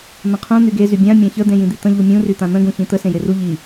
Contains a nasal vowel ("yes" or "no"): yes